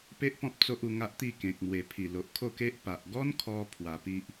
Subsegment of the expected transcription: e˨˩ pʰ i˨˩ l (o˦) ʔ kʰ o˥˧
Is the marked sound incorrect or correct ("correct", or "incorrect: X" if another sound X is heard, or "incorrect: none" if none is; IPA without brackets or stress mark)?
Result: incorrect: o˨